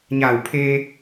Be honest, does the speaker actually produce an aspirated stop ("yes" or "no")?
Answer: yes